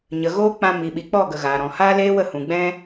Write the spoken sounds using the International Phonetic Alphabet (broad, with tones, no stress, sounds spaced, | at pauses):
ɲ ə˨ ɣ oː˦ k͡p ã˧ m i˨ ɓ i˨ k͡p ɔ˦˨ ɡ ə˨ ɣ aː˨ ɾ ɔ̃˨ h aː˦ l eː˦ w ə˦˨ h ũ˨ ɡ͡b ɛ̃˦